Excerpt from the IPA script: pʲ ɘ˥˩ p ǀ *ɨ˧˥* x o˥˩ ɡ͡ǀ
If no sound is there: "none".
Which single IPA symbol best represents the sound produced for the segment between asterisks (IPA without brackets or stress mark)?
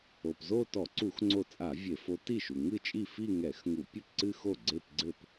ɨ˥˧